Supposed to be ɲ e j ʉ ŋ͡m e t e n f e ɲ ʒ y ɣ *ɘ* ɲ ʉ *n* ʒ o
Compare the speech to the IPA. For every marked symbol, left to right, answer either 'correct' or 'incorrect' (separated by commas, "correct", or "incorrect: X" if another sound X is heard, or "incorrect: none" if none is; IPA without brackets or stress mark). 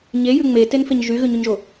incorrect: ʉ, incorrect: ɲ